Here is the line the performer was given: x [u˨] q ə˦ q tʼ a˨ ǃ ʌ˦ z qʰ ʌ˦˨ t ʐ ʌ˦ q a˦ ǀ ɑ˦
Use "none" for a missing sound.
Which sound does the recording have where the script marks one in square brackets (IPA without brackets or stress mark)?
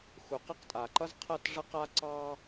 u˨